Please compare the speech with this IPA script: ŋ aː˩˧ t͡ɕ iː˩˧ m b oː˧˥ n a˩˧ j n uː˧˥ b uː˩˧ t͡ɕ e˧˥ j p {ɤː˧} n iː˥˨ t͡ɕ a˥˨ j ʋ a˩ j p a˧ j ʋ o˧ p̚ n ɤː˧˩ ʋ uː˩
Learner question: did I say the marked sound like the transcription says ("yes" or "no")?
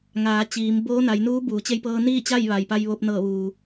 no